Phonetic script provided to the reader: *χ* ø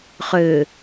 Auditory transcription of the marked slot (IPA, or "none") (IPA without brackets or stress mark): χ